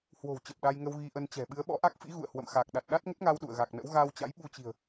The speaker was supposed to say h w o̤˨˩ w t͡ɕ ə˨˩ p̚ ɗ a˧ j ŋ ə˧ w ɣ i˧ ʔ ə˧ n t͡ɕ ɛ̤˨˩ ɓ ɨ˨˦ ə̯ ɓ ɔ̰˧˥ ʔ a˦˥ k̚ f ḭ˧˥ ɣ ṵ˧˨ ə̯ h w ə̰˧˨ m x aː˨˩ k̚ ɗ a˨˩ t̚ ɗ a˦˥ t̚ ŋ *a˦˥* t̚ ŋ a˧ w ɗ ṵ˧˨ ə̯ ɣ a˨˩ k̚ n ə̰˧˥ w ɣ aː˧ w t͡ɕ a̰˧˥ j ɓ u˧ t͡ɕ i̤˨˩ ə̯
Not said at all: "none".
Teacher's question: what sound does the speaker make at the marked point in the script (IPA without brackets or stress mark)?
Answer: ə˦˥